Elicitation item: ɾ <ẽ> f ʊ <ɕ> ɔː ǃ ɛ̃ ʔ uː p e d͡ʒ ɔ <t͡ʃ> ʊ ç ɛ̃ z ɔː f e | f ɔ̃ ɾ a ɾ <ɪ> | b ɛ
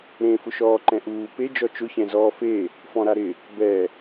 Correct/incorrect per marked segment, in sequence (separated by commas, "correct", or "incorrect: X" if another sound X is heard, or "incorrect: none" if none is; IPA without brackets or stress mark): correct, incorrect: ʃ, correct, correct